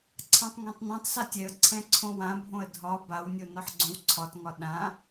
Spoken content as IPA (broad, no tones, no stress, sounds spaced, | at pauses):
ǀʰ ã tˤ ŋ ɛ̃ tˤ n ɛ̃ tˤ s a tʲ ɛ ə̯ ǀʰ ɛ̃ ǀʰ õ w ã bʱ õ ə̯ dʱ ɒ b a w nʲ o n ɒ ħ ɡ͡ǀ õ w ǀʰ ɒ t ŋ ɒ ɗ ã